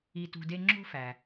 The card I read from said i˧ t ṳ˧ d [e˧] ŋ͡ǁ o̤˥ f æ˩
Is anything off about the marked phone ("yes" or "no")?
yes